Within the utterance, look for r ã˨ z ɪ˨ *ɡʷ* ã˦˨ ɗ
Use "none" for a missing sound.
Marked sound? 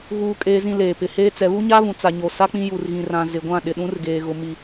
ɡʷ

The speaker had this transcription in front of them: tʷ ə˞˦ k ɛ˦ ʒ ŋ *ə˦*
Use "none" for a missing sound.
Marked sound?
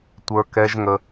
ə˦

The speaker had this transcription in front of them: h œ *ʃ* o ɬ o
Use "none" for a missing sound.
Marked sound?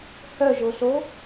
ʒ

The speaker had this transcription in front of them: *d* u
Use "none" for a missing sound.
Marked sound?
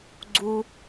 ɡ͡ǀ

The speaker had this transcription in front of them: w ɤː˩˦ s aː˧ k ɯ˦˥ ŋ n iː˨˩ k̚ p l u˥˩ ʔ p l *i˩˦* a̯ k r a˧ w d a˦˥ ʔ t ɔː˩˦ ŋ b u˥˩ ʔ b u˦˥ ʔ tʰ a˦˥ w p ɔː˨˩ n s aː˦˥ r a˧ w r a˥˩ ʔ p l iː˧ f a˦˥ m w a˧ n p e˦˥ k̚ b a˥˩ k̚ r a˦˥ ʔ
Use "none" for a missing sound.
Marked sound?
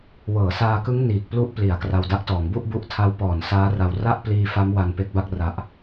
i˩˦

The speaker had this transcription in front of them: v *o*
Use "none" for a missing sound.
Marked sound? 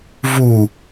u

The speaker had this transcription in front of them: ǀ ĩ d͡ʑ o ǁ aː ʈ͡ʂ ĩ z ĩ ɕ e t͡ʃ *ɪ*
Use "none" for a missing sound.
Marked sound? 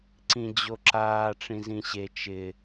ɪ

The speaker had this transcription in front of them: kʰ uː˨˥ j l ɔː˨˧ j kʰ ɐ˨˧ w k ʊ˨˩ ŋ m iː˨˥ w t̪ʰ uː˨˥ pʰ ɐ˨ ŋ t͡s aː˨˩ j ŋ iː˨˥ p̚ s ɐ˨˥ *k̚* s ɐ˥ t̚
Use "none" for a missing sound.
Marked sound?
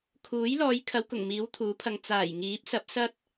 p̚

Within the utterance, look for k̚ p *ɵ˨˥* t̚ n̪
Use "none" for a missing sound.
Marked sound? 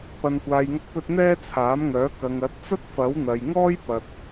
ɵ˧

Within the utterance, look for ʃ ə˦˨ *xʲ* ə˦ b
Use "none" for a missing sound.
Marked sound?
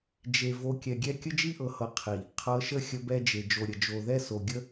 xʲ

